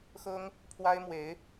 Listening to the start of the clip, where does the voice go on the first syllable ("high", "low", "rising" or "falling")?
high